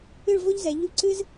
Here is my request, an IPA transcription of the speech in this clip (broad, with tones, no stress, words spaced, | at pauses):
ɨ˥˧ɭvo˥ʎzɛ˩˧ʎu˥˧ ǀɨ˥z